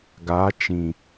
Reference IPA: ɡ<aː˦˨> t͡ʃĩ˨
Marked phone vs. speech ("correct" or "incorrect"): incorrect